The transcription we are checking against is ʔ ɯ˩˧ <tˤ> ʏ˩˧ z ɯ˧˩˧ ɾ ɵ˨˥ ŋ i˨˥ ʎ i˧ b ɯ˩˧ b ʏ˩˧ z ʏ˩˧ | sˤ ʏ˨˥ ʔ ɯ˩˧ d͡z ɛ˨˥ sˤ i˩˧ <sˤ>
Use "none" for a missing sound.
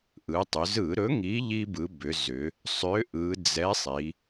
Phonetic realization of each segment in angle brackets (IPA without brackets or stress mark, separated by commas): tˤ, none